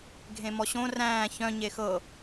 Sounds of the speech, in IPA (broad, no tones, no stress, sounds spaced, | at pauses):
ɡʱ ẽ m ɔ ɕ õ r æ̃ː ç œ̃ ɲ e x ɤ